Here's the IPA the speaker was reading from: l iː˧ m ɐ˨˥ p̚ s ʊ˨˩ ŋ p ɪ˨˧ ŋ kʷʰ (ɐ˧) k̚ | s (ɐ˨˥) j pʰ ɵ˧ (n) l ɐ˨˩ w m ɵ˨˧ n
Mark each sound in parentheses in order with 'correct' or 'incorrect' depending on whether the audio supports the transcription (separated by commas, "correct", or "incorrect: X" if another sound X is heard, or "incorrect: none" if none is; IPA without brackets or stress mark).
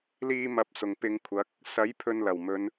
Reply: incorrect: ɐ˨˥, correct, correct